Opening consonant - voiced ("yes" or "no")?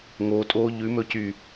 yes